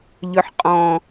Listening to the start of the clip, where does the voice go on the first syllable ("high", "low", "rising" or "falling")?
low